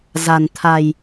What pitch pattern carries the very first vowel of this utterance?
low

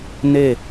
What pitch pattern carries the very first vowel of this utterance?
falling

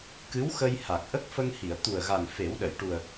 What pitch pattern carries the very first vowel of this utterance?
rising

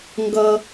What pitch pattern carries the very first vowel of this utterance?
low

